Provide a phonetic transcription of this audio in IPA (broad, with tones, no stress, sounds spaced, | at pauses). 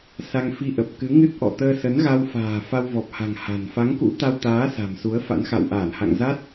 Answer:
s a˧ ŋ f i˧ ʔ ə˨˩ p̚ k ɨ˨˦ ŋ ɨ˦˥ t̚ ʔ ɔ̰˧˨ t̪ əː˧ s ə˨˦ n ɣ a˧ w f a̤ː˨˩ f a˧ w v ɔ˨˩ p̚ h a̤˨˩ ŋ h a̤˨˩ n f a˨˦ ŋ k ṵ˧˥ t̪ a˧ w t̪ aː˨˦ s a̤˨˩ m s u˨˦ ə̯ f a̰˧˥ n x a̰˧˨ w ʔ aː˧˩ n h a̰˧˨ ŋ z a˦˥ t̚